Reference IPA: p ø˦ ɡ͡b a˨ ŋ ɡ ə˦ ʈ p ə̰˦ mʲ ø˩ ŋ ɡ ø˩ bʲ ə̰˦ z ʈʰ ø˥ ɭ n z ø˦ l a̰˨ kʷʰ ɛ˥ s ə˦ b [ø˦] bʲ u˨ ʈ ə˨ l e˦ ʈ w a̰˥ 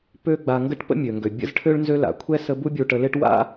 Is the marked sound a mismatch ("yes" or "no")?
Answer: yes